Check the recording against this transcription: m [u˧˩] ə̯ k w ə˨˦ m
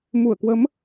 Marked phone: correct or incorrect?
correct